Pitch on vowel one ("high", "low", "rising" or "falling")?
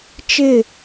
falling